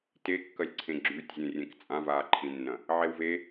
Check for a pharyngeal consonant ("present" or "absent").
present